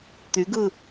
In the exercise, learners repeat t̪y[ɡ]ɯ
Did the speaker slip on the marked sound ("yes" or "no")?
no